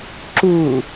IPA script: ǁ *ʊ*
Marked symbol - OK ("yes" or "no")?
no